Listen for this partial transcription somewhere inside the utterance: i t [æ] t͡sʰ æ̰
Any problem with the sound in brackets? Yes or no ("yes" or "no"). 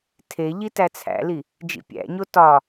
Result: no